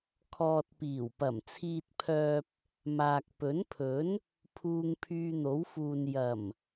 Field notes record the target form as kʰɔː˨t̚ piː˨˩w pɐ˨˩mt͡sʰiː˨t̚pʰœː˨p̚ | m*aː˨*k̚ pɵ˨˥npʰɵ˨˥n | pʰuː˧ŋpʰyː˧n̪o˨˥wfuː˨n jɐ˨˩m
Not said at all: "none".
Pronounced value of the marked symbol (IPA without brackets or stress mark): aː˨